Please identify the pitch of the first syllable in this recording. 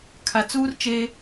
low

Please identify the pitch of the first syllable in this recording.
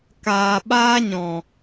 low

